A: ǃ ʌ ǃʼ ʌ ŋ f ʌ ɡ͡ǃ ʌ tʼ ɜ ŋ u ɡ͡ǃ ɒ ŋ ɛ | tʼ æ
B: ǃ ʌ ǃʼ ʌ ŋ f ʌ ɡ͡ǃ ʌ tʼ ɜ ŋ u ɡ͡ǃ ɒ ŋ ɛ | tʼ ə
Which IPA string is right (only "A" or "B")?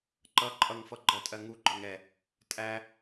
A